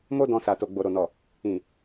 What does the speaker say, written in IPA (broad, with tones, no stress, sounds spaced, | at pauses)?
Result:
m o˦ d ɔ̃˧ s a˨ t o˨ ɡ͡b o˨ ɾ o˨ n ɔ˨ | ĩ˨